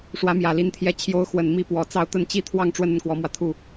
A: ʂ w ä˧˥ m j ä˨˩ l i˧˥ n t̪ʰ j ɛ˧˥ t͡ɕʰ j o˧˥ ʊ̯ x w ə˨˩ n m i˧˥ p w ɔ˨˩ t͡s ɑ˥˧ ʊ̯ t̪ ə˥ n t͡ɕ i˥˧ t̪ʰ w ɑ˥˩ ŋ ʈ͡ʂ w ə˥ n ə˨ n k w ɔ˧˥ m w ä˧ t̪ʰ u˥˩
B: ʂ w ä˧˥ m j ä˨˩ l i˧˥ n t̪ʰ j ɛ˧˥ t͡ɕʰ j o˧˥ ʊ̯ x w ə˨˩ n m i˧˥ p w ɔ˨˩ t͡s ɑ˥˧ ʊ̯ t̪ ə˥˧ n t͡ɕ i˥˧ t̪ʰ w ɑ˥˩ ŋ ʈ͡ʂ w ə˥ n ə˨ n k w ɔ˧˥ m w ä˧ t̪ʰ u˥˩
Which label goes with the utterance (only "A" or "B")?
B